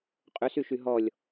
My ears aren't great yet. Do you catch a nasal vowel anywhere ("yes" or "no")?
no